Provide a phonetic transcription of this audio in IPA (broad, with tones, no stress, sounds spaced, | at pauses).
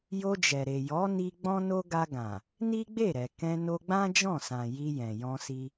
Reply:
j o˧ d͡ʒ ɛ˨ ɾ e˨ j ɔ˨˦ n i˧ ɡ͡b ɔ̃˦ n o˦ ɡ a˧ ɡ ã˨ | n i˦ ɡ͡b e˦˨ ɾ ɛ˨ k ɛ̃˧ n o˧ ɡ͡b ã˦ d͡ʒ ɔ̃˦˨ s ã˨ j i˧ j ɛ̃˨ j ɔ̃˧ s i˧